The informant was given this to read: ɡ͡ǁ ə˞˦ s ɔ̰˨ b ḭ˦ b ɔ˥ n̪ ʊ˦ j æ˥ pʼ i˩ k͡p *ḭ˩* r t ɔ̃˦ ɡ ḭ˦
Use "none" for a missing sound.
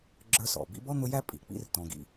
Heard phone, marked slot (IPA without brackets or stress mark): ḭ˦